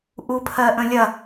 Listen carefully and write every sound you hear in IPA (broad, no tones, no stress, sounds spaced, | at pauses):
ʔ u pʰ ɜ ʔ ə̃ lʲ ɐ